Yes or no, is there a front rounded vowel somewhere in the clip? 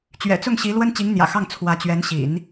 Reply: no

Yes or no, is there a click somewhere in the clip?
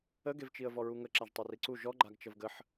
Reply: yes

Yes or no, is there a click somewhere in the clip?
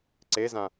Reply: yes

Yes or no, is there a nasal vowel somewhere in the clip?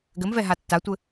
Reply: no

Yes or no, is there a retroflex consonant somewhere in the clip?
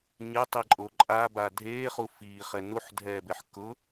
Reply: no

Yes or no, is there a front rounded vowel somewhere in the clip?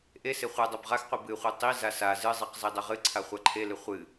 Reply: no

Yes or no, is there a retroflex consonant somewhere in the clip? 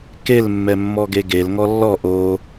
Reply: no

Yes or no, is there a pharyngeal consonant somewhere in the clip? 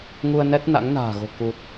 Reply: no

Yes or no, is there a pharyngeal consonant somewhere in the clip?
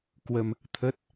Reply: no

